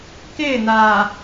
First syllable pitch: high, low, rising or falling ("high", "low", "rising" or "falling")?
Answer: falling